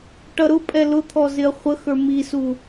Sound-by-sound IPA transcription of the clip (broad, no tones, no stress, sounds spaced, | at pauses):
ʈ ʌ ɾ ʊ pʼ ɛ l ʊ t̪ʰ ɔ z ɪ ɐ̯ χʷ ə x ə˞ m i s u